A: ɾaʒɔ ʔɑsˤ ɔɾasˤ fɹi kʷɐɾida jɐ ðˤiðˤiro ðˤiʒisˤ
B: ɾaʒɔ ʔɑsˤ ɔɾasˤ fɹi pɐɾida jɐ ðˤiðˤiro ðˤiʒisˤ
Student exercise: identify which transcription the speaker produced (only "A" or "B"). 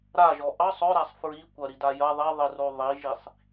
A